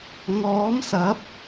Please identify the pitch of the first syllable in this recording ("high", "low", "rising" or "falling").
rising